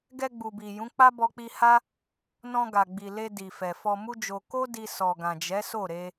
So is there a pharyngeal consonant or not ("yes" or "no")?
no